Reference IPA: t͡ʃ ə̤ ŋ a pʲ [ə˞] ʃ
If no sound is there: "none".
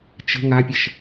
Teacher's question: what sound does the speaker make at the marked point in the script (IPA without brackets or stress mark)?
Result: ə